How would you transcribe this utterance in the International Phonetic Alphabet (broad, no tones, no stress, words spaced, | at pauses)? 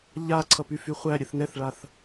ʎa ǀʰʌpyfyχʷæ ɾʲɛθnɛθɭaθ